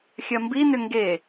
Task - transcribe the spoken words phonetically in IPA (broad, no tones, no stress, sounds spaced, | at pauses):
xʲ ɐ m b i n ʏ ŋ ɡ e